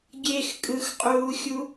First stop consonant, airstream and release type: plain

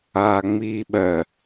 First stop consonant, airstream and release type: implosive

